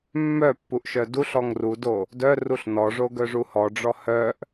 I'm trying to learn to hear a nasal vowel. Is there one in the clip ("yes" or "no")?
no